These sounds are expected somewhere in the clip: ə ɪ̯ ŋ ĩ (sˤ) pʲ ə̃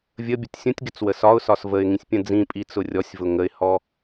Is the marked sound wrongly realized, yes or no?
yes